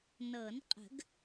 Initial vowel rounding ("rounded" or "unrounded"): unrounded